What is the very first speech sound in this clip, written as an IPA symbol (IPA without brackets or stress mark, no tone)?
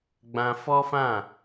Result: ɡ͡b